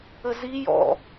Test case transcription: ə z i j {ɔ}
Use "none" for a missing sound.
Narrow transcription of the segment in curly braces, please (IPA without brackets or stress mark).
ɔ̰